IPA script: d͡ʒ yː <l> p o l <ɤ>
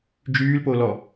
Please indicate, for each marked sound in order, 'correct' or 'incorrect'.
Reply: correct, incorrect: ɔ

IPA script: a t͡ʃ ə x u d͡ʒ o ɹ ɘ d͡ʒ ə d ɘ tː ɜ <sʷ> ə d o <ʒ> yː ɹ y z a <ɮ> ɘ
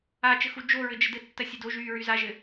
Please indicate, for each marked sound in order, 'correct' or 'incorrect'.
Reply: incorrect: sʲ, correct, incorrect: ʒ

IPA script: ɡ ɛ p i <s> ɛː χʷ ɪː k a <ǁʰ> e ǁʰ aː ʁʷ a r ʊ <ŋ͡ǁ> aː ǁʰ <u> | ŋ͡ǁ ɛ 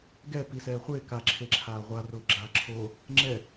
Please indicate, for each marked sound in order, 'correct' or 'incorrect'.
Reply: correct, correct, incorrect: ɡ͡ǁ, incorrect: o

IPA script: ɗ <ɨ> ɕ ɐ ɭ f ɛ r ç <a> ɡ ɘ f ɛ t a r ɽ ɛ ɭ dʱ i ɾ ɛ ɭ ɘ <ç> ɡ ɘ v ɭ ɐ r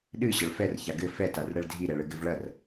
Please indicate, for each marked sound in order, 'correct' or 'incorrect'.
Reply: correct, correct, incorrect: none

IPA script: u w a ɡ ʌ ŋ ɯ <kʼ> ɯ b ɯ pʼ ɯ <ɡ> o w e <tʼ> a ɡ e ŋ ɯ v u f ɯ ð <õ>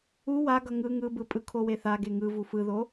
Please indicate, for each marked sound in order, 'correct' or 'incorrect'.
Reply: incorrect: ŋ, incorrect: kʰ, incorrect: θ, incorrect: o

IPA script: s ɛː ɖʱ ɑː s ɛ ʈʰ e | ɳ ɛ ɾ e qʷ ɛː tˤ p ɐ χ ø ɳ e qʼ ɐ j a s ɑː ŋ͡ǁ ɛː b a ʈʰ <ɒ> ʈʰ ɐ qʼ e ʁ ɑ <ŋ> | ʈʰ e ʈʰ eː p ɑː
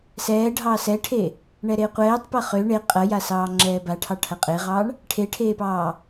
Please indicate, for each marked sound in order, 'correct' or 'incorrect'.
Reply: incorrect: ɑ, incorrect: ɳ

